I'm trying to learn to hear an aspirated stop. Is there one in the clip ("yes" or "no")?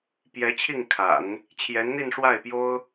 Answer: yes